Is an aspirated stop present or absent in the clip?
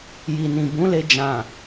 absent